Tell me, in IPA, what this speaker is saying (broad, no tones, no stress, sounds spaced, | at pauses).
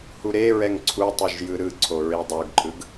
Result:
h u ɾ e ɹ ɛ ŋ ǀʰ u tˤ ɯ ʒ j ɯ ɾ ɯ ǀʰ o ɹ i dˤ o ɡ ǃʼ ɯ ɡ